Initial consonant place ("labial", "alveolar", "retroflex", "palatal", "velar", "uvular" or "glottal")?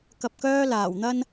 velar